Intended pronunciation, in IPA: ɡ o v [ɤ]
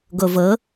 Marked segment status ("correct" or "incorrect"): correct